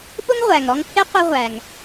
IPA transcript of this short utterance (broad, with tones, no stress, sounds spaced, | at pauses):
ɓ ʊ˥ ŋ ʁʷ æ˩ ŋ ɾ ɔ˦ ŋ pʰ ɪ˥ qʷ ʌ˦ ʁʷ æ˩ ŋ